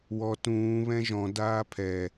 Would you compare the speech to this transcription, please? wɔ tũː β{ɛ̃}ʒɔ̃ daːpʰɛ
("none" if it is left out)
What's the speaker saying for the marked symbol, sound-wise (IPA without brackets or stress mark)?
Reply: ɛ̃